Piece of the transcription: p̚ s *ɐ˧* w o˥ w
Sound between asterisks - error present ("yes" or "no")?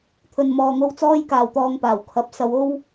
yes